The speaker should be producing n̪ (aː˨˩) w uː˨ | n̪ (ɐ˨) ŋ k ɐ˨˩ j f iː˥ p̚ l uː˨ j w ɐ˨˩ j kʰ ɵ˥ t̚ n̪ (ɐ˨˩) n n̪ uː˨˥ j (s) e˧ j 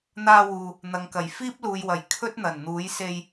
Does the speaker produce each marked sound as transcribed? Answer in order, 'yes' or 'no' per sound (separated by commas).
no, yes, yes, yes